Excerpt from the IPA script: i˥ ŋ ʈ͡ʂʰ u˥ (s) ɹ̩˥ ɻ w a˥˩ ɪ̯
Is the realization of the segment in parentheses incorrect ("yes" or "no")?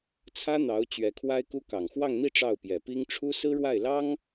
no